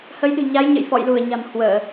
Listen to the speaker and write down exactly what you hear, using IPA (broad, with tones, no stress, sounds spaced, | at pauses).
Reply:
h ə˨˦ j ɗ ɨ̤˨˩ ɲ a˨˦ j ɲ ə̰˧˨ j f ɔ̰˧˨ j l u˧˩ ə̯ ɲ a̤˨˩ m h w əː˧˩˨